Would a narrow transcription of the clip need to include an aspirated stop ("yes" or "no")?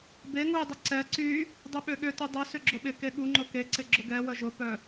no